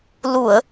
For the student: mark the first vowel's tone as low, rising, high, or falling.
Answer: low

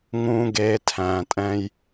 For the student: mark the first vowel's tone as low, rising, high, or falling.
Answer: high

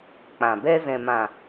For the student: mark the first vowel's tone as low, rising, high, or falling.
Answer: low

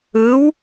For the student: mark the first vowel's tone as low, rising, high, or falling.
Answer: rising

